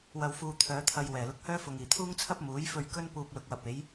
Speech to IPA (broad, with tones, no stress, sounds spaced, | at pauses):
w ɐ˨ w f uː˨ t̪ʰ œː˨˧ t̪ʰ ɐ˧ j w ɛː˨˩ l ʊ˧ k̚ h œː˥ f ʊ˨ ŋ iː˨˩ t̪ʰ uː˥ ŋ t͡sʰ ɐ˥ p̚ m uː˨˥ j f ɵ˧ ɥ k ɵ˥ n p uː˧ p̚ l ʊ˨ k̚ w ɐ˨ p̚ e˨˥ j